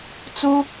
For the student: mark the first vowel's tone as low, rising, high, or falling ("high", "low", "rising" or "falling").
high